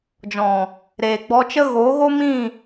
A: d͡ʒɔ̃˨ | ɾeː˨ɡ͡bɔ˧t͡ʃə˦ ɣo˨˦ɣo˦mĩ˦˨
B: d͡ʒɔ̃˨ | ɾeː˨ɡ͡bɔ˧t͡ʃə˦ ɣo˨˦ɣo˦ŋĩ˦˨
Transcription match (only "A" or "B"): A